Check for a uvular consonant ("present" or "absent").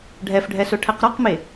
present